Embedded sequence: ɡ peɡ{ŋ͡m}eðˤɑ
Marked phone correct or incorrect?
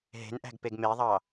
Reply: incorrect